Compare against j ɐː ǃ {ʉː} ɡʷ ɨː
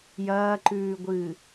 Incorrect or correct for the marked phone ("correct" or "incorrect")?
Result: correct